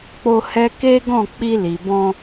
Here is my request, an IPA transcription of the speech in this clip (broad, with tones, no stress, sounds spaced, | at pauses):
k͡p o˧ h ɛ˧ k e˦ ɡ ɔ̃˦˨ k͡p i˧ l i˨ b ɔ̃˧